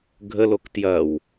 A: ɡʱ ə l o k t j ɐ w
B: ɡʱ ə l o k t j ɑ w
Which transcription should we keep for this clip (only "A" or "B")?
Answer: A